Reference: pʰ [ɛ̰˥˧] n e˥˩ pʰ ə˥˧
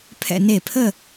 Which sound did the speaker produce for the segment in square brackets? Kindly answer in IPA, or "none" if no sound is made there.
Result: ɛ̰˥˧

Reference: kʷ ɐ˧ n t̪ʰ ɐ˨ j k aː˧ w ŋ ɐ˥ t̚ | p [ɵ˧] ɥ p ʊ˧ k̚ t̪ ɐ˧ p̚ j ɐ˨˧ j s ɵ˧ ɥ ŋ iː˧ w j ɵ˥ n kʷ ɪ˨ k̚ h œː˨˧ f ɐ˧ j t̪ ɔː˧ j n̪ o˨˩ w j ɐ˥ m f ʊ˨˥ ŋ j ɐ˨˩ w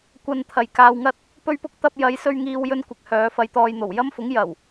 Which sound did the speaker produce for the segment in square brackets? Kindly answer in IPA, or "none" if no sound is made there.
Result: ɵ˧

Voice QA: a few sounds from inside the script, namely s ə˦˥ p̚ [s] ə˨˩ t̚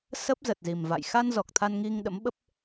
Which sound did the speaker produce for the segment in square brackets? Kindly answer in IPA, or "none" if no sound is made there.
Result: z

